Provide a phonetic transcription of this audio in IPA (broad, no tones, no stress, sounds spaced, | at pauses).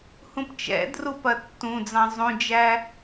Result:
h ũ p t͡ʃ ɛ̰ d r u p ɐ tː ũ d͡z ɑ̃ zˤ ũ d͡ʒ æ